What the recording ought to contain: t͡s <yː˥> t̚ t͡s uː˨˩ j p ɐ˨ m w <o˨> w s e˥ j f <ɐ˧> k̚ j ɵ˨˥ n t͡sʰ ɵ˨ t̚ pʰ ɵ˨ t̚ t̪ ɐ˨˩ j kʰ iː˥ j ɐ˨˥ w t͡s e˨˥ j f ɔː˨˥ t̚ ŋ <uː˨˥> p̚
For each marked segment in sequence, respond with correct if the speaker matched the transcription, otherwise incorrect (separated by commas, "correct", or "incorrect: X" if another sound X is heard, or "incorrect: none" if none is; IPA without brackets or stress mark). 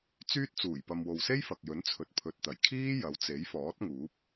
correct, correct, incorrect: ɐ˨, correct